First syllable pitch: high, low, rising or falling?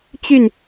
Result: falling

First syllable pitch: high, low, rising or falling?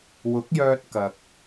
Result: rising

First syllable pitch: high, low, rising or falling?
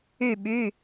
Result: falling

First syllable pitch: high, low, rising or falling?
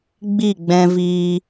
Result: falling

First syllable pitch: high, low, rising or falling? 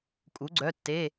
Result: rising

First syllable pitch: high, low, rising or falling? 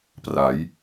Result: rising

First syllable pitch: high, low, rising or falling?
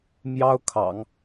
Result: high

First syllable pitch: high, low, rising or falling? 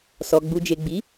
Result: low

